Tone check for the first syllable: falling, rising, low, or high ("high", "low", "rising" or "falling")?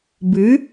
rising